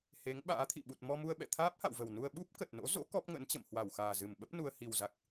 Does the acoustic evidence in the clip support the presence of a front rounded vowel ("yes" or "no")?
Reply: no